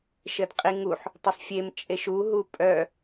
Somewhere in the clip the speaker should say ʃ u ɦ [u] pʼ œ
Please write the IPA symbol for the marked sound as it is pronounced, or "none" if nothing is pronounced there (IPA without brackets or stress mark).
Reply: u